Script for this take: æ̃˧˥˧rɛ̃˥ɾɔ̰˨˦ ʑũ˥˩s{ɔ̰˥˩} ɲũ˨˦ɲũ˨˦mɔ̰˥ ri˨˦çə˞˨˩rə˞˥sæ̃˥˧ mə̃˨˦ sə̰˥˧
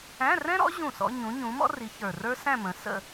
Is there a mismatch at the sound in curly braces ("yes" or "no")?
yes